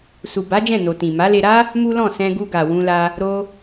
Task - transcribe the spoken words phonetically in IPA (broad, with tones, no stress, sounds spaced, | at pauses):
s u˨ b a˨˦ d͡ʒ ɛ̃˦˨ n o˨ t ĩ˨ m a˨˦ l e˧ ɾ a˦ | m u˦ l ɔ̃˦˨ s ɛ̃˧ ɡ u˧ ɡ a˨ w ũ˧ l a˧ | ɾ o˧